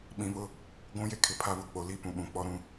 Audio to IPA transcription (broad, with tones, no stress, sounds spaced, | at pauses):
ɓ ĩ˨ β ʊ˦ | ɡʷ ũ˦ j e˦ kʰ ɪ˨ pʰ a˦ β ʊ˦ k͡p o˨ l i˦ p ũ˨ ɓ ũ˨ k͡p ɔ˦ ɾ ũ˦